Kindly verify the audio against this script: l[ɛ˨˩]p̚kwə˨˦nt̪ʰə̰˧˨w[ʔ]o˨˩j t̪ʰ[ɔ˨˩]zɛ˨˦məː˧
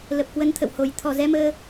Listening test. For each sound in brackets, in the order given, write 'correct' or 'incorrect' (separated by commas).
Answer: incorrect, incorrect, correct